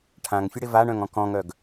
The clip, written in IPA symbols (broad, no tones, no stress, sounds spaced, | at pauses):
ʈʰ ã ŋ fʲ ʊ ɽ ɪ v a ɳ œ̃ ŋ ɔ̃ k ɔ̃ ŋ œ ɡ